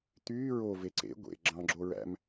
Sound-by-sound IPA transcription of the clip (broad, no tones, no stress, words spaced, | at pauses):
t̪yː ɹove ǀḛ ɡʷḛ ɡ͡ǁɑ̃ ɡ͡ǁoɹæ̰m